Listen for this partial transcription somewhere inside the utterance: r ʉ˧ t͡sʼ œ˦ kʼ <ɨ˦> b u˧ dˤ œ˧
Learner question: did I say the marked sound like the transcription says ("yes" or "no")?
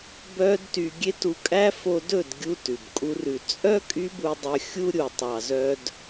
no